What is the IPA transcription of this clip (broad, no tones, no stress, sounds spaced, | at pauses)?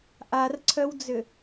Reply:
ʔ a r ǀʰ œ w d͡z ʏ